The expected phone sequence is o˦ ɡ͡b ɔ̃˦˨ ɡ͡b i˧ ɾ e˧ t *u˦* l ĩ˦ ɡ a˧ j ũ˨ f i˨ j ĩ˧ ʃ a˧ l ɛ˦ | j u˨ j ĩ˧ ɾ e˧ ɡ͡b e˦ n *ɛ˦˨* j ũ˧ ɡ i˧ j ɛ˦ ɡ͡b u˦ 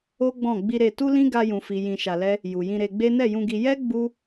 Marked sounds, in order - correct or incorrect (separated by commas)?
correct, correct